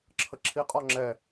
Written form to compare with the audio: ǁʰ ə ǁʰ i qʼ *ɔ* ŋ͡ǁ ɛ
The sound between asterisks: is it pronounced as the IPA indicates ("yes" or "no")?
yes